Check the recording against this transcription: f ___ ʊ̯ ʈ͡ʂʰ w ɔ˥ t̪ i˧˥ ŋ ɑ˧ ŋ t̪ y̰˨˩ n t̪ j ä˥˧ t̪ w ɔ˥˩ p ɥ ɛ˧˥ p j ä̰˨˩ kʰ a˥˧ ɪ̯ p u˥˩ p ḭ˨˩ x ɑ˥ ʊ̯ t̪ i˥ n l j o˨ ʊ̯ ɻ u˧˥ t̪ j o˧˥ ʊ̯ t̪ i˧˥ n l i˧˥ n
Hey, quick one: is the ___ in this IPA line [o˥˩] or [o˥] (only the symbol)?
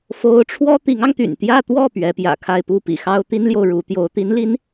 o˥